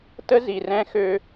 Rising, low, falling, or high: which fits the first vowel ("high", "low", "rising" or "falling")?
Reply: high